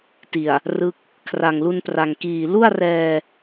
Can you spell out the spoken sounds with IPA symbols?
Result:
ti˨˩a̯ | rɯ˦˥k̚ | kʰra˨˩ŋlu˧npra˨˩ŋ kiː˨˩lu˥˩a̯rɛː˧

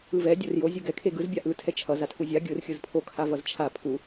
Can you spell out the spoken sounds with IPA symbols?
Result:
ɯvɛ dʲorjo zʲuɡɛ kʰeɡɯz bʲaʔɯ tʰɛt͡ʃʰʌ zatʰuzʲa ɡʲɯr xʲɯzpʰo kʰavʌzt͡ʃʰa pʰu

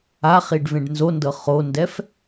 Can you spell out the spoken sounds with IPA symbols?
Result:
aχiɖ vẽɖnzondɤ χondɛf

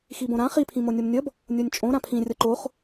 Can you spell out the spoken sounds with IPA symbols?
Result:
xibõɾã χi pʰĩmonʲomnʲʌb | nʲonʲt͡ʃʼõ ɾãpʰĩ rʲʌǃoχ

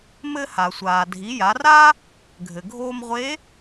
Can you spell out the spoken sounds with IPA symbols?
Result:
mɘ˧ha˩sʷaː˩ dʱi˩˧ja˩˧ra˥ | ɡʱɘ˩ɡʱoː˧mʁʷe˧˥

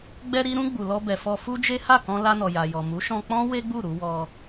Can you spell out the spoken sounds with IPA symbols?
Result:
ɡ͡bɛ˧ɾi˧ɾũ˧ ɡ͡bu˨lɔ˧bɛ˨fɔ˧ fu˦d͡ʒe˦ ha˦˨kɔ̃˧la˧nɔ˨ ja˨jɔ˨mu˨˦ ʃɔ̃˧k͡pɔ̃˦ we˦ɡ͡bu˦˨ɾu˧ wɔ˧

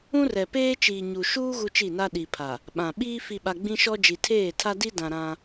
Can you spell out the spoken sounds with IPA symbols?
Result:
ũ˦rɛ˨ peː˦t͡ʃiː˨ɲu˨ ʃuː˦ ɣu˦t͡ʃi˦˨na˦ ɗi˨pʰa˨ | ɓã˨ ɓiː˦ fi˨ɓa˨ ɡ͡bĩ˦ʃɔ˦ d͡ʒi˨tʰeː˦˨ tʰa˦di˦dã˨ ɾã˦

